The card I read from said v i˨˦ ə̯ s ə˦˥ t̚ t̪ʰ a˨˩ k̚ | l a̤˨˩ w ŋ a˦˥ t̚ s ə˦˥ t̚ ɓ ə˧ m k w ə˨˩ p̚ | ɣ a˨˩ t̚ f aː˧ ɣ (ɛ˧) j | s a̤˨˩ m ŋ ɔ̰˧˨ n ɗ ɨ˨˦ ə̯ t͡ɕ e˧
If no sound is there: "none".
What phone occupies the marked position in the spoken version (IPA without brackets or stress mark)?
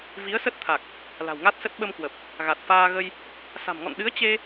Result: ə˧